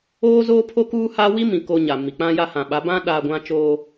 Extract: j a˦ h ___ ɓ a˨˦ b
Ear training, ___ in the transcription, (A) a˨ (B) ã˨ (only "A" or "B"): B